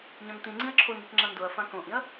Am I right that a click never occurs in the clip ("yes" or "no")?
no